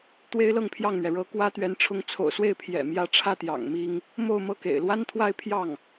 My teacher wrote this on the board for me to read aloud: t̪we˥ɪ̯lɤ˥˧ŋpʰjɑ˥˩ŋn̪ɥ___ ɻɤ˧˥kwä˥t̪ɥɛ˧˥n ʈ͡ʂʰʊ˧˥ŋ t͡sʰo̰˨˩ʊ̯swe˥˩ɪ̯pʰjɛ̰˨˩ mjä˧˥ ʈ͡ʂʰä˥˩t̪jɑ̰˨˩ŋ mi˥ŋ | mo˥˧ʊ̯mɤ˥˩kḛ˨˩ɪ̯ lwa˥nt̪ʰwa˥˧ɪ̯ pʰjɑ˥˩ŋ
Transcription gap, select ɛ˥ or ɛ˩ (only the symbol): ɛ˩